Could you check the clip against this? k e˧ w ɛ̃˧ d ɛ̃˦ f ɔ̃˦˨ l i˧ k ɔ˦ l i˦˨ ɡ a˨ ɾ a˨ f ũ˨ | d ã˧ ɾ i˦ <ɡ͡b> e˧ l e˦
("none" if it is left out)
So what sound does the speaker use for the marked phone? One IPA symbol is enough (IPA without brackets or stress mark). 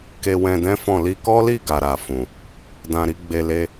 ɡ͡b